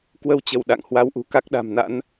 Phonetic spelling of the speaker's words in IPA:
kwə˧wt͡ɕə˧˩w ɗa̰˧˨ŋ hwa˧wʔṳ˨˩ ka˦˥k̚ɗa̤˨˩mna̰˧˥n

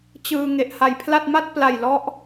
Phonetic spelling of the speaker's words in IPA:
t͡ɕɯː˧ ŋe˨˩ʔha˨˩jpʰla˥˩t̚ ma˥˩t̚pla˨˩j lɔ˦˥ʔ

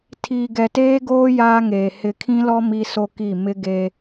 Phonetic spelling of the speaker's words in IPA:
tʰi˨ ɡɛ˨teː˦ɡoː˦ jaː˦ŋeː˨ hɪ˨kʰĩ˦lɔ˦ mi˦so˦ki˦˨ mɪ˦ɡe˦

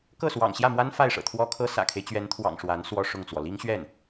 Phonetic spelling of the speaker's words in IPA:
kɤ˥˩swɑ̰˨˩ŋɕjä˥˩mwa˥n fa˥˩ɪ̯ʂɤ̰˨˩t̪ʰwɔ˥kʰɤ˥ sä̰˨˩kʰe˦ɪ̯t͡ɕɥɛ˧˥nt̪ʰwɑ̰˨˩ŋ ʂwa˧˥n swɔ˥˧ʂʊ˥˩ŋt͡swɔ˩ li˥ŋɕɥɛ˥˩n

